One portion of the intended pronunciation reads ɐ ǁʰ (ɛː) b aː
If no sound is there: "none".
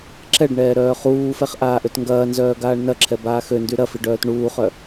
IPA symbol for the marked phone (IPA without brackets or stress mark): ɛ